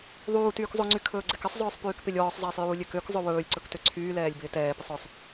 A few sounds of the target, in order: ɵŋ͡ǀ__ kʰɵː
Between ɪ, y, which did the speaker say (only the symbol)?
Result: y